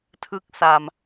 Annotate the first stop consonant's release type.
aspirated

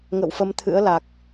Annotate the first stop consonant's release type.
aspirated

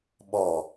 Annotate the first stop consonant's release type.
implosive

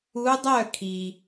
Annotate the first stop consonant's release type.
plain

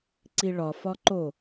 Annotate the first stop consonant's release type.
click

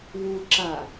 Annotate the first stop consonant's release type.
click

